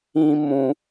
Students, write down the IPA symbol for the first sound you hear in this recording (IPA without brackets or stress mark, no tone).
ĩ